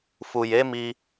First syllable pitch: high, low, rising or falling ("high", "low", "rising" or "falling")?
low